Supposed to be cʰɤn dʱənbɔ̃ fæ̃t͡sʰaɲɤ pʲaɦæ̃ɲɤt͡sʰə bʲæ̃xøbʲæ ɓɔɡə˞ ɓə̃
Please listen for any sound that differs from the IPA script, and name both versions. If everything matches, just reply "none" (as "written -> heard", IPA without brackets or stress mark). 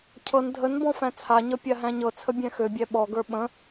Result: none